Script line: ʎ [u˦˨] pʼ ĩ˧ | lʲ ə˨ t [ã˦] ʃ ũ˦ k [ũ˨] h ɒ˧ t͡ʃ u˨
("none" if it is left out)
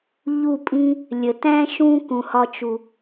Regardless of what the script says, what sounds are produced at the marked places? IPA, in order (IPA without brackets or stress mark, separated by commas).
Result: u˦˨, æ̃˦, ũ˨